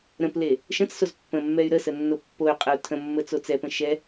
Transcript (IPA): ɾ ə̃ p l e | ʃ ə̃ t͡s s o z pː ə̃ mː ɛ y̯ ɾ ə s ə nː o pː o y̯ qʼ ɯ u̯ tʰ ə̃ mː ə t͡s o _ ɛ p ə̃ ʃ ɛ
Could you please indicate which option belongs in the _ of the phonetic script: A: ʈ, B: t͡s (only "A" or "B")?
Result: B